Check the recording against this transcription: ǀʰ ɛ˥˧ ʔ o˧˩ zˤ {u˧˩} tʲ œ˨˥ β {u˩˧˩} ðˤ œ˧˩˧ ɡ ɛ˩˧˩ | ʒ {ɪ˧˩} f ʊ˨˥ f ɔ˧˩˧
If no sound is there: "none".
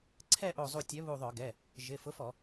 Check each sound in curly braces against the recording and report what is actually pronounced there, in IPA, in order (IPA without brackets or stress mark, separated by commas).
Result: u˧˩, u˧˩, ɪ˩˧˩